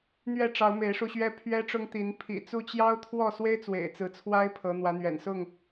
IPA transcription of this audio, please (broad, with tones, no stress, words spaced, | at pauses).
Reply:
n̪ɥɛ˥˨ʈ͡ʂɑ˨˦ʊ̯ me˨˦ɪ̯ʂu˧ɕɥɛ˦ pʰɥɛ˦ʈ͡ʂʊ˦ŋt̪i˨˦n pʰḭ˨˩t͡su˥˨ t͡ɕjɑ˦ʊ̯t̪ʰwɔ˥˨swe˦ɪ̯ t͡swḛ˨˩ɪ̯t͡sɹ̩˨˦t͡sʰwa˦ɪ̯ pʰɤ˨˦n̪wä˨˦n̪ɥɛ̰˨˩n sʊ˥˨ŋ